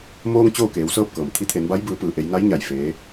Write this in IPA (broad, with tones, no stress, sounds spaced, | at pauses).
m oː˧ ŋ t͡ɕ oː˥˨ k eː˩˧ w s ɤː˥˨ p̚ k ɤː˩ m t̪ʰ i˧˥ t̪ʰ e˩˧ n b a˧˥ j b ɯː˩˧ p ɯː˩ ʔ e˩˧ j n a˧˥ j ɲ a˧˩ j f eː˧˥